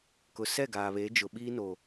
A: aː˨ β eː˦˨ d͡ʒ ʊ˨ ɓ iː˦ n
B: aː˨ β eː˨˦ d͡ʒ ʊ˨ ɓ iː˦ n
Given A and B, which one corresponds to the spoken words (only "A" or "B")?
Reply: B